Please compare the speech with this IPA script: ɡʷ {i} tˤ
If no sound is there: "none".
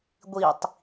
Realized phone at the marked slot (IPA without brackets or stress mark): i